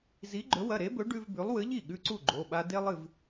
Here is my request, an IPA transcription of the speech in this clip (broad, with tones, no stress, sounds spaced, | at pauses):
z i˨˥ ɡ͡ǃ ɵ˨˥ w ɐ˩˧˩ ɾ e˨˥ b ɵ˨˥ ɖ ʉ˦ v b ʉ˨˥ lˠ w ɨ˨˥ ʎ i˥˩ ɠ ʉ˦ ǀ u˥˩ ɡ͡ǃ o˩˧˩ ɓ a˦ d e˦ lˠ ɨ˥˩ v